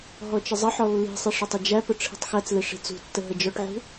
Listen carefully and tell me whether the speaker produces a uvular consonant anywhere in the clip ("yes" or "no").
no